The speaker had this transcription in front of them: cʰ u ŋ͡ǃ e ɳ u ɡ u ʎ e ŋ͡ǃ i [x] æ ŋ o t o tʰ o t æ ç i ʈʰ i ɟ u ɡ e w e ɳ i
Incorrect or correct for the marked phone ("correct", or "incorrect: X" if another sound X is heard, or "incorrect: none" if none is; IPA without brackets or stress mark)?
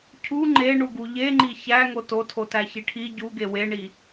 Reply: incorrect: ç